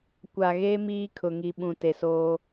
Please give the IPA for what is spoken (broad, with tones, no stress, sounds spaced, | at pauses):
kʷ a˨ ɣ eː˦ m iː˦ kʰ ʊ˨ ŋ i˨ ɓ ũ˨ t e˨ s oː˦